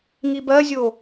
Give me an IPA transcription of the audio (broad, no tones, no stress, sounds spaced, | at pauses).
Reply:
ŋ i b ɜ zʲ o